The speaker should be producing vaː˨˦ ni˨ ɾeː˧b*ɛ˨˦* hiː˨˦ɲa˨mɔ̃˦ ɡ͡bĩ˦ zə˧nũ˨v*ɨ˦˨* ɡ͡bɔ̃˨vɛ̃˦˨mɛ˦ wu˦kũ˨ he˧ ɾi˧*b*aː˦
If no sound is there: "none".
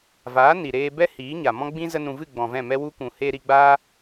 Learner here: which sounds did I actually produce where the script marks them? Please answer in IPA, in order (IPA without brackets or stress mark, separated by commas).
ɛ˦, ɨ˦˨, ɡ͡b